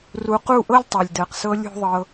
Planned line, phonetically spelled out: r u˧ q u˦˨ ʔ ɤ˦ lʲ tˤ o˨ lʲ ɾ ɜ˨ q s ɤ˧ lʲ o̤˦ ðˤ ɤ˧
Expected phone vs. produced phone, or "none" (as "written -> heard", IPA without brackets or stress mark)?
ɾ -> d